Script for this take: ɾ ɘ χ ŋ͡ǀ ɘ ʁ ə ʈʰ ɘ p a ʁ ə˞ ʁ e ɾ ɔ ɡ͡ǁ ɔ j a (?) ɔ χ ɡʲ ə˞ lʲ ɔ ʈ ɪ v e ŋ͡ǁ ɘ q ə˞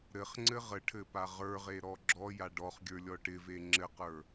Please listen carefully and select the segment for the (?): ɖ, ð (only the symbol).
ɖ